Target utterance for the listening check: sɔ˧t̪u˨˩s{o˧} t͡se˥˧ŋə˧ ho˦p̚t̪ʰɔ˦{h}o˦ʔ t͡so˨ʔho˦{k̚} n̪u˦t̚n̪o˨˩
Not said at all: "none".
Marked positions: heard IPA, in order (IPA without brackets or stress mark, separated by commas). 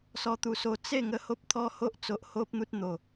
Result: o˧, h, p̚